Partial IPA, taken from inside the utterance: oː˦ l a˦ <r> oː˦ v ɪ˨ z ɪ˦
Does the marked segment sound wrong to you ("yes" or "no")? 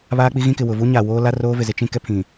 no